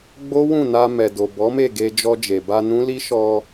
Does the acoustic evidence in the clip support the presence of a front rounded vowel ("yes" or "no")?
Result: no